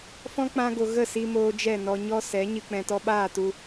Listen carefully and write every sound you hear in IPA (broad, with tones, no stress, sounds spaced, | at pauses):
f ɔ̃˦ k͡p ã˦ ɡ o˧ ɣ ə˦˨ s i˧ m oː˧ d͡ʒ ɛ˦˨ n ɔ˧ ɲ ɔ˦ s ɛ˨˦ ɲ ɨ˧ k͡p ɛ̃˧ t ɔ˧ ɓ aː˦˨ t u˧